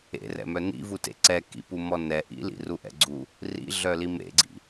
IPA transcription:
ḛ r ɛ̰ m œ n ḭ v u t ḛ ǀ ɛ k ḭ p u m ɔ n ɛ ʔ ḭ l ḭ r u ʔ ɛ̰ ɡ͡ǀ u | r ḭ ɮ œ l i m ḛ ɡ͡ǀ ḭ

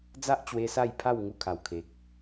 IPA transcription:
d͡z a˦ ʔ t͡ɕ w e˧ s a˥˧ j pʰ a˥˧ w ŋ u˥˧ kʰ a˨˩ w kʰ e˨ k̚

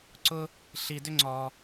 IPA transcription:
ǀ ʊ˥ | ɬ i˧ d ʏ˥ ŋ͡ǀ ɔ˧

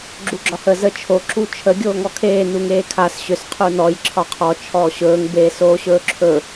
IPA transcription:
ɡ͡ǁ u ɡ͡ǁ ɒ h ə z ə t͡ʃʰ o ǁ u t͡ʃʰ ə ɡʲ oː ŋ ɔ kʰ eː n u ŋ eː kʰ a s ɕ ʏ s qʰ u n ɔ j ǁʰ ɒ qʰ ɔ t͡ʃʰ ɔː ɕ ɵː ŋ b eː s oː ɕ ɵː ǁʰ ɵ

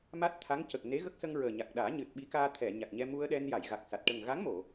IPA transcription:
m a˦˥ t̚ t̪ʰ a˧˥ ŋ c ə˨˩ k̚ n e˧˥ ɣ ə˦˥ k̚ s ə˧ ŋ ɹ əː˨˩ ɲ a˨˩ k̚ ɗ aː˨˩˦ ɲ ɨ˨˩ t̚ ɓ i˧˥ k aː˧ t̪ʰ ɛ˨˩˨ ɲ a˨˩ k̚ ɲ ɛ˧ m u˧ ə̯ ɗ ɛ˧ n j a˨˩˨ j ɣ a˨˩ k̚ s a˨˩ t̚ ʈ ə˨˩ ŋ ɣ a˧˥ ŋ m o˨˩˨

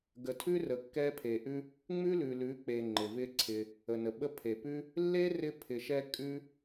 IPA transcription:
ɡ ə˨ tʰ ʉ˦ r ə˨ kː ɛ˧ pʰ e˨ ʔ ʉ˦ | ŋ͡m ʉ˦ l ʉ˨ l ʉ˨˦ k͡p e˨ ŋ͡ǃ ɪ˨ v ɪ˦ ǀʰ ɪ˧ | ə˨ n ə˨ ɓ ə˦ pʰ e˨ p ʉ˦ | lː e˦ r ɪ˧ pʰ ɪ˨ ʃ ɛ˧ kʼ ʉ˦

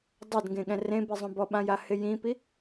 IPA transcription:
dˤ a d ŋ ɡ ẽ ɠ ɛ̃ r ẽ b i zˤ õ b ɔ ɓ ã j a h ɪ j ĩ p i

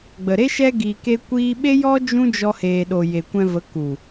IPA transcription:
ɡ͡b ə˨ ɾ e˦ ʃ ɛ˧ ɡ iː˨ k e˦ kʷ iː˦ ɓ e˦ j ɔ˦ d͡ʒ ũ˦ d͡ʒ ɔ˧ h eː˨ ɗ o˨ j e˨ kʷ ɛ̃˧ v ə˨˦ k u˨

